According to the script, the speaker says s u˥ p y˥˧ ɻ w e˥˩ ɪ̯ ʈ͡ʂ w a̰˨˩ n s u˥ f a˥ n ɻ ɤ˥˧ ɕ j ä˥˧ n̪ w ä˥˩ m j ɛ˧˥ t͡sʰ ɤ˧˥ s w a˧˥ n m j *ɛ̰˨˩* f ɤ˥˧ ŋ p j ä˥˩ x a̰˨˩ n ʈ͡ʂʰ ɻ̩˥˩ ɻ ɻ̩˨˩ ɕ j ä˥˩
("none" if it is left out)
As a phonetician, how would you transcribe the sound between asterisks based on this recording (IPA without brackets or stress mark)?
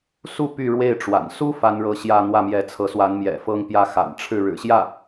ɛ̰˨˩